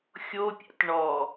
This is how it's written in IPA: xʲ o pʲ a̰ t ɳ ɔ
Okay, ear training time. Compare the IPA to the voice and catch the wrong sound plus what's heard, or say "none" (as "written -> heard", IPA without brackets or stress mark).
none